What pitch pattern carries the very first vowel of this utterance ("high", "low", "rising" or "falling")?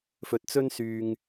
rising